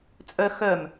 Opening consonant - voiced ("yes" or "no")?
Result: no